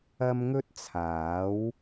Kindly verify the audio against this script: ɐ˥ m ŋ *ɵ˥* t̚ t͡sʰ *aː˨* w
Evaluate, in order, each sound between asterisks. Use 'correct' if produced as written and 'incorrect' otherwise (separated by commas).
correct, incorrect